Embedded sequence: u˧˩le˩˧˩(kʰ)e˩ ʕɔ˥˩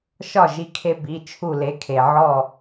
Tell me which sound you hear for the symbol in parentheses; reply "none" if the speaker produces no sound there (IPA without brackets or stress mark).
kʰ